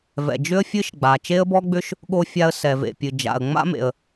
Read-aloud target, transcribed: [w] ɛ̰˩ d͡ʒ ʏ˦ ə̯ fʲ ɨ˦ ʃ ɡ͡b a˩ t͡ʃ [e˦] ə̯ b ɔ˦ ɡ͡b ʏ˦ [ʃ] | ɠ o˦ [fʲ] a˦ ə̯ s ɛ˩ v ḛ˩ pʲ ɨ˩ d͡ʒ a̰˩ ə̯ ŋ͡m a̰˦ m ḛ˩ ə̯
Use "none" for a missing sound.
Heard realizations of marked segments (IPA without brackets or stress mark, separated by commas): v, e˦, ʃ, fʲ